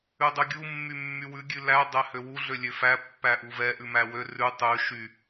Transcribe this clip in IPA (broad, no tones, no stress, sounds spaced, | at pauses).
ʉ dˤ ʉ ɡʲ u mː y mː y w ʉ ɡʲ ʉ l æ dˤ ɛ h ø w u ɮ ø lʲ ø f æ pː æ ʔ u v ɛ ʔ ʉ m æ w ø r ʉ tˤ ʉ ʃ y